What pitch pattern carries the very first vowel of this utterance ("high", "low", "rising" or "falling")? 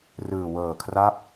low